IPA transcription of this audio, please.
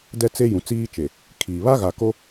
d ɛ˦ t͡s e˦ j ũ˨ t͡s iː˦ t͡ʃ e˨ | kʰ iː˨ β a˦ ɣ a˨ k o˦

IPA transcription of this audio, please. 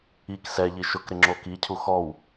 i k s ɛ ʎ i ʃ ʊ k ɾ ɪ ŋ͡ǁ o k i cʰ u x ɔ w

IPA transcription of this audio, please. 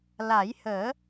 l a˨˩˦ j h əː˨˩˦

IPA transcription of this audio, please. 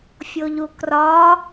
fʲ o ʎ u k r ɒ

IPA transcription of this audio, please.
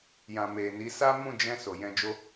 j ã˨ m e˨ n i˨˦ s a˦ m ũ˦˨ d͡ʒ ɛ̃˧ s o˨ j ɛ̃˧ d͡ʒ o˦

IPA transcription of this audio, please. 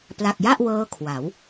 p l a˨˩ k̚ j a˥˩ ʔ w ɤː˦˥ kʰ w a˩˦ w

